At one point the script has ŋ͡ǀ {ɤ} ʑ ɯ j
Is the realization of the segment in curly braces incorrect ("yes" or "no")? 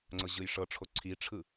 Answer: no